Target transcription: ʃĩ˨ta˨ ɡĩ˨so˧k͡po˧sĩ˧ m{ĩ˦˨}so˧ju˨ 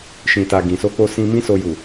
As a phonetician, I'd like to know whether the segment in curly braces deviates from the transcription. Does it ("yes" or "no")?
yes